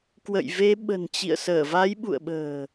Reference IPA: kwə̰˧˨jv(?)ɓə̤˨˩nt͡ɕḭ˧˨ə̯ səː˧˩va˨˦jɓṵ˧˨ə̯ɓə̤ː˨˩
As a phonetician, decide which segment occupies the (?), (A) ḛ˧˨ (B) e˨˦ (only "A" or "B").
B